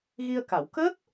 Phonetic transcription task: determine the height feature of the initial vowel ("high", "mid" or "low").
high